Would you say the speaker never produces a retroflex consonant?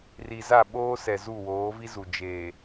yes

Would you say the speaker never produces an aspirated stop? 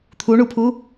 no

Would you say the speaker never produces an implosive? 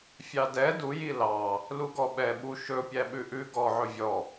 no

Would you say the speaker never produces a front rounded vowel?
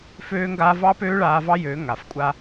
no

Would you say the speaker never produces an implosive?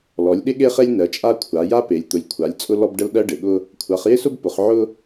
no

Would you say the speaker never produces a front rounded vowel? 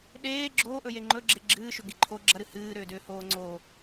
no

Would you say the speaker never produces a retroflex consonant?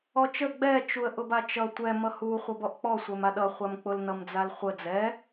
yes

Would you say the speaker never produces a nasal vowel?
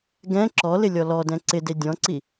no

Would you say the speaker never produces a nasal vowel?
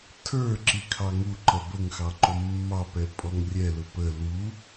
yes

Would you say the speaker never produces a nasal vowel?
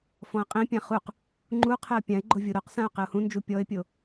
no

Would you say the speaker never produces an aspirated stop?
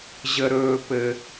yes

